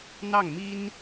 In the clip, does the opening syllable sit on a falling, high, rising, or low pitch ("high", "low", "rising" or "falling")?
falling